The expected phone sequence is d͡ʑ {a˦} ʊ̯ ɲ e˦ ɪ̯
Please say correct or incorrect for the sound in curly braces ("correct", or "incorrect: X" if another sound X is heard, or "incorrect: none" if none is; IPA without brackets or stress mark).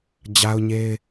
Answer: correct